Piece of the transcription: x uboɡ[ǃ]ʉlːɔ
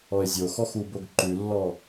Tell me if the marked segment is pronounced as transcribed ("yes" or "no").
yes